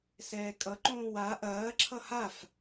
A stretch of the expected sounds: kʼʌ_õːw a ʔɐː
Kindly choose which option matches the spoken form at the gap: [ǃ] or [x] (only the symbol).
ǃ